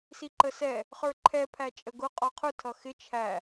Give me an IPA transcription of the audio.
s i ǃ ə s ɛ | χ ə˞ ǃʰ ɛ pʰ æ t͡ʃʼ ə ɡ ʊ qʼ ɔ qʰ ʊ tʰ ʌ x ɪ t͡ʃʰ æ

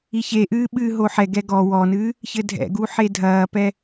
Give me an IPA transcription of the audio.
i ç e ʔ ɨː ɓ ɨː ɦ o ħ ɛ ɡ ɛ ɡ ɔ w ɔ n ɨ | ç ɘ dʱ ɛ̰ ɡ u ħ e dʱ ɐː p ɛ

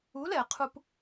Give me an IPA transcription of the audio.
u˨˦ l ɛ˨ qʰ u˧ p

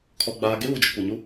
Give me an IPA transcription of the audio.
kʰ ɔ˨ ɡ͡b aː˨ ɡ e˦ β u˨ d͡ʒ ɪ˨ kʷ e˨ ɲ u˦

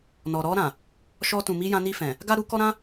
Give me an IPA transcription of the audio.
n ɔ˨ ɾ ɔ˧ ɾ ã˨ | ʃ ɔ˧ t ũ˨ m i˧ j ã˧ n i˧ f ɛ̃˨ | ɡ a˦ ɾ u˦ k ɔ˦ ɾ ã˦

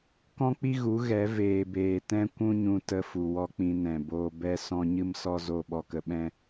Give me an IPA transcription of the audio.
k ɔ̃˦ k͡p i˦ ɣ u˨˦ ɣ ɛ˨˦ v eː˨ b eː˨ t ɛ̃˦ kʷ ũ˦ ɲ ũ˧ t ə˧ f u˨ w ɔ˧ k͡p ĩ˧ n ɛ̃˨ b oː˧ b ɛ˦ s ɔ̃˦ ɲ ɨ˦ m s ɔ˦ z o˦˨ ɓ ɔ˧ k ə˧ ɓ ɛ̃˦

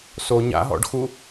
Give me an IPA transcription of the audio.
s o ɲ a̰ ɦ ɔ̰ ɖ x u

